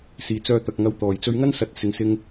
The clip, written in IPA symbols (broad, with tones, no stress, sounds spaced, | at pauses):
s iː˨ t͡s œː˧ t̪ ɐ˨ k̚ ŋ ɐ˧ w t̪ ɔː˨˩ j t͡s ɵ˧ ɥ ŋ ɐ˥ n s ɐ˨˥ t̚ s ɪ˨ ŋ s ɪ˧ ŋ